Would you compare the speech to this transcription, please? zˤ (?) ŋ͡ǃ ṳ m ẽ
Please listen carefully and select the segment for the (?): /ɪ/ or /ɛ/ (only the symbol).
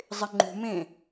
ɪ